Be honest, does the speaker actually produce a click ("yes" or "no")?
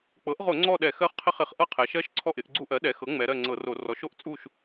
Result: yes